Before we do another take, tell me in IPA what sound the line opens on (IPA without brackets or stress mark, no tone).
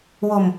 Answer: w